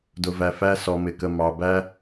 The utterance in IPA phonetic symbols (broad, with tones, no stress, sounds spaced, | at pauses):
d ʊ˨ v æ˨ f æ˦ s ɔ˨ m ɪ˨ k ə˨ m ɑ˨ b æ˦